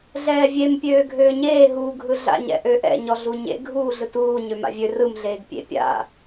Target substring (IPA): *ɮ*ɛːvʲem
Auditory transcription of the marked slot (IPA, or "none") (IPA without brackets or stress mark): ɮ